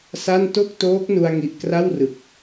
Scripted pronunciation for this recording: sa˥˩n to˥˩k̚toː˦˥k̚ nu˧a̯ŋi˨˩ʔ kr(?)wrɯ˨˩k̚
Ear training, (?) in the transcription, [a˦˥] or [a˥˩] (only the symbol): a˥˩